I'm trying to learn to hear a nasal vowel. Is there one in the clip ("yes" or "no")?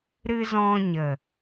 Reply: yes